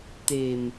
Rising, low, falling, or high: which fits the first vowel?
low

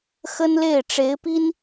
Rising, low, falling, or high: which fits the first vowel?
high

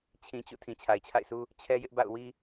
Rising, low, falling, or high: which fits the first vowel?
low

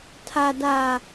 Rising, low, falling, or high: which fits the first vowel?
low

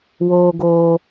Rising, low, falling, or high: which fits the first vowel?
high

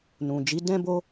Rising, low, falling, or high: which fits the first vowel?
low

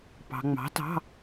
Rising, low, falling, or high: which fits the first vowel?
low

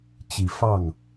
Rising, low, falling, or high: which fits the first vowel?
low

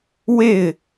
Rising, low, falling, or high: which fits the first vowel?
falling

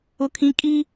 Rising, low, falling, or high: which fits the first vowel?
high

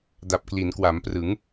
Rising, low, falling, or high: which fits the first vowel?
low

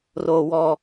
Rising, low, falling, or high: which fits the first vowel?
high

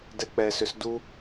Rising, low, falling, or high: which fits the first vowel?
low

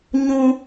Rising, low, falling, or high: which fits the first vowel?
high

